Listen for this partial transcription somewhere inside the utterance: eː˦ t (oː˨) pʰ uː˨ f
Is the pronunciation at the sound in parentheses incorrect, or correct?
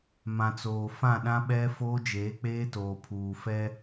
correct